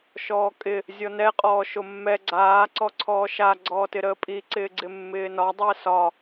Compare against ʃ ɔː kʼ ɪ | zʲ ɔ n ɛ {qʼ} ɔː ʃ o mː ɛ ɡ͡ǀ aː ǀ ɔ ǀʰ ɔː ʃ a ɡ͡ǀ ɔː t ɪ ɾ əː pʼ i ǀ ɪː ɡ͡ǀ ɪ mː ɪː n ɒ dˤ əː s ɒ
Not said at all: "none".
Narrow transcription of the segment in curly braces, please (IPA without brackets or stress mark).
qʼ